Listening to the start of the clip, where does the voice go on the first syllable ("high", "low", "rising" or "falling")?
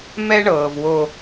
high